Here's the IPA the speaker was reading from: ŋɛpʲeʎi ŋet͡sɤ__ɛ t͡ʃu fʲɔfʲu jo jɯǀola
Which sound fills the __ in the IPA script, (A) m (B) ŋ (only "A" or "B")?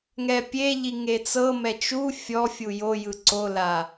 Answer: A